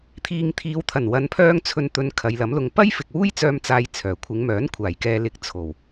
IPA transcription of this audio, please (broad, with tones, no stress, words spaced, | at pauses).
t̪ʰiː˨ŋt̪ʰiː˨˧wt̪ʰɐ˨˩n wɐ˨˧npʰœː˧ŋt͡sʰɵ˨nt̪ɵ˨˧n kʰɐ˨˧jlɐ˨˥mlʊ˧ŋ pɐ˥j fɪ˨k̚wuː˥jt͡sœː˧m t͡saː˥jt͡sʰœː˨˩ kʷʰɪ˨˧ŋmœː˨˥nkʷʰaː˨˩j kɛː˨lɪ˨˥k̚ t͡sʰo˨˩w